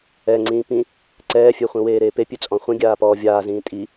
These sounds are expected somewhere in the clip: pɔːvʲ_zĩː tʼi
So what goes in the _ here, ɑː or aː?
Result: aː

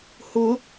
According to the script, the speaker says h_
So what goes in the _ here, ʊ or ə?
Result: ʊ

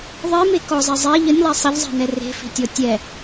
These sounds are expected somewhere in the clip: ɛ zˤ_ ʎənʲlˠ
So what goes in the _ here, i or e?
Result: e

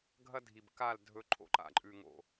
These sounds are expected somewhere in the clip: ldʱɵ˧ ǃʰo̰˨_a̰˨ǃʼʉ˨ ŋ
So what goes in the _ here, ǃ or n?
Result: ǃ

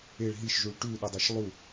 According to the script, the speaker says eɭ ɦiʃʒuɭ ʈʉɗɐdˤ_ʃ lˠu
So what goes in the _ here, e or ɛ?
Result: e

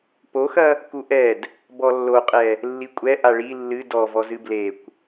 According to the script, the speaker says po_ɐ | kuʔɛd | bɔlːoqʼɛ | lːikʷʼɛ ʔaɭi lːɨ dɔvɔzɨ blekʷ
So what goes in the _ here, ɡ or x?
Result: x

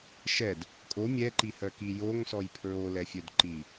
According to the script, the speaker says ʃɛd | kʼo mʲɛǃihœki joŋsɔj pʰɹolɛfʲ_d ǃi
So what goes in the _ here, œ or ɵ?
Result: œ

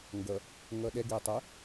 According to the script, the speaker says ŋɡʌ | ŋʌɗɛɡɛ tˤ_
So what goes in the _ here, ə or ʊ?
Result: ə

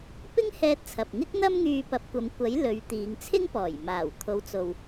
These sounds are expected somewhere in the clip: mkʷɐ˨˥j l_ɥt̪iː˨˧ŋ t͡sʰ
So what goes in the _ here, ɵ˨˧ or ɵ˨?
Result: ɵ˨˧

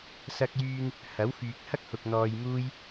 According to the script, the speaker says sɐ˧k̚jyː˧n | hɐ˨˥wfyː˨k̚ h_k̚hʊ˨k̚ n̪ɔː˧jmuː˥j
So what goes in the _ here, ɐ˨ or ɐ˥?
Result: ɐ˥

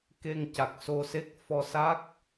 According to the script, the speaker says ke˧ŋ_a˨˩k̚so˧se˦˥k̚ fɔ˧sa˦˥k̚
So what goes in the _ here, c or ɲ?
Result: c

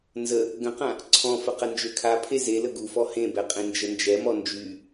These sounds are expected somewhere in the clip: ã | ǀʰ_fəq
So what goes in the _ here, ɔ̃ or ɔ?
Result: ɔ̃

